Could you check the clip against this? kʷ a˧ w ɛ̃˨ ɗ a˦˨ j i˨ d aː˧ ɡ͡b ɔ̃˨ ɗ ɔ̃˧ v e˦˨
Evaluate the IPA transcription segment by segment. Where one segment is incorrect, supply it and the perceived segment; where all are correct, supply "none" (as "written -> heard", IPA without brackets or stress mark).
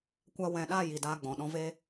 e˦˨ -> e˧